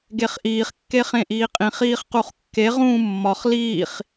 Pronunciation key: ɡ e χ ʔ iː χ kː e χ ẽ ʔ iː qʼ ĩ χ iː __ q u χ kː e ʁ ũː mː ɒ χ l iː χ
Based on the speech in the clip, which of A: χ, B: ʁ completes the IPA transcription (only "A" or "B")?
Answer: A